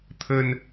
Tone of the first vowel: low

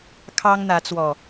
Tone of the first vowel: high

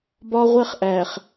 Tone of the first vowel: high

